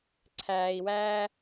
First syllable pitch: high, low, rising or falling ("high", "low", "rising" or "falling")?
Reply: low